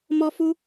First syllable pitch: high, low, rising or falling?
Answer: high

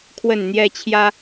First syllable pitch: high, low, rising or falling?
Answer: falling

